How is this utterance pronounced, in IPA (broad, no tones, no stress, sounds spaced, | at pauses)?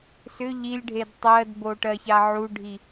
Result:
s ʏ ʎ i lʲ ɖʱ e d tˤ ɜ d b o ʈ ɜ ç a ʕ u ɖʱ i